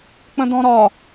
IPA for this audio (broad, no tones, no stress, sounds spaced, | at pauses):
k͡p ə̃ d ɔ̃ ɾ ɒ